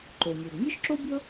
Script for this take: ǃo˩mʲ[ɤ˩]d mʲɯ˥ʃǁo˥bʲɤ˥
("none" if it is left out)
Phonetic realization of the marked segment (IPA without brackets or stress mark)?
ɤ˩